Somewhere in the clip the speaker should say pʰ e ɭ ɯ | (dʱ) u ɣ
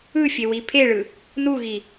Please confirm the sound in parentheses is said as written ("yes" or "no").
no